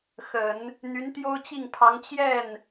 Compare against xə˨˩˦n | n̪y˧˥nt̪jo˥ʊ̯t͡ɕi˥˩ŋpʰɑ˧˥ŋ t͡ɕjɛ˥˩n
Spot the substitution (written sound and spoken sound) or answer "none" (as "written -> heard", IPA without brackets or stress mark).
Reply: none